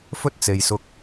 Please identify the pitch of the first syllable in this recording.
high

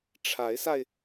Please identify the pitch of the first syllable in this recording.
rising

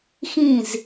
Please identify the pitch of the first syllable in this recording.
falling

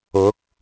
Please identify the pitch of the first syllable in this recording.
rising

